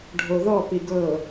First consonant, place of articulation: retroflex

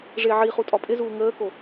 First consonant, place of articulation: retroflex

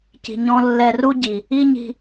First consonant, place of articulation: palatal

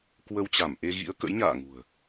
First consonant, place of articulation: velar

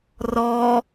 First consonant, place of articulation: alveolar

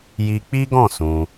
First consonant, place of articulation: palatal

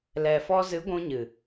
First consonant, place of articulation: alveolar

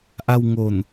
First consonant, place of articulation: glottal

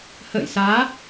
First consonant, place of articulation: glottal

